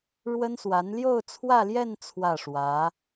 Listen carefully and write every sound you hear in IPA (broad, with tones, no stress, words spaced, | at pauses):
ɻwə˥nswa˧˥n ljo˥˧ʊ̯t͡sʰwä˥˧ljɛ˥˧n t͡sʰwä˥˩ʂwä˧˥